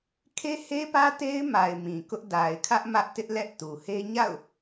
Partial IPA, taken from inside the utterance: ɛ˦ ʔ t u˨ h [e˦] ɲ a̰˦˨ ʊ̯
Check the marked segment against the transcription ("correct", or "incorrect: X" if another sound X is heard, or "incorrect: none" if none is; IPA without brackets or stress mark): correct